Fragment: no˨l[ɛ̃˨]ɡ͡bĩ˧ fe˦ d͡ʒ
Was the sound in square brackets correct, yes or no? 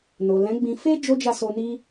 no